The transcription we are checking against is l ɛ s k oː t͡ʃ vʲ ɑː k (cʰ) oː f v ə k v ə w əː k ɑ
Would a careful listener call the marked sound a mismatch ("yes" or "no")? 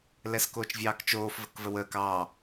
yes